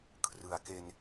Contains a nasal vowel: no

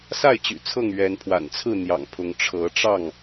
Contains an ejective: no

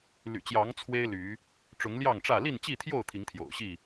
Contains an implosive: no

